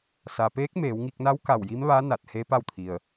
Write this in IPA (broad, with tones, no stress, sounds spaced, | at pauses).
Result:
s a˩ p eː˧˥ k̚ m eː˩˧ w ŋ i˧ k̚ n a˧˥ w k a˧˩ w j i˧˥ m ʋ a˧˥ n a˧˩ t̚ h e˧˥ p a˥˨ w t̪ʰ i˩ ə̯